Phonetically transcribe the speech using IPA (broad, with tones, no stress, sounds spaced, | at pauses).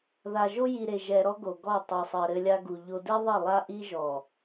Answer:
ð a˨ ʒ o˦ j i˨ ɾ e˨ ʒ ɛ˨ ɾ ɔ˦ ɡ o˨ ɡ ɔ˦˨ tˤ ɛ˨ sˤ ɘ˨ ɾ ɘ˦ lʲ a˦ ɡ u˨ ʎ o˦ d e˦ ðˤ i˦˨ lˠ a˦ ʔ i˦ ʒ ɔ˨